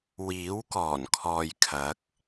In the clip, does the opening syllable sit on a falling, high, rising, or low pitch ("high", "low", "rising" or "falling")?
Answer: rising